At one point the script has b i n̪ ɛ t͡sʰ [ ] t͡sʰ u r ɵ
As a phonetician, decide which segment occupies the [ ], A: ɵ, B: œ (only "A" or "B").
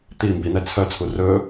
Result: B